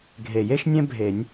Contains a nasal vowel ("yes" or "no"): yes